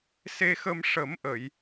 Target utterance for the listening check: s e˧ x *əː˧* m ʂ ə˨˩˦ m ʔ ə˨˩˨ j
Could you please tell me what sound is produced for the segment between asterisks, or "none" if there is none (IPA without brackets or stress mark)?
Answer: ə˧